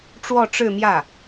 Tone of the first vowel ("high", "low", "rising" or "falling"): falling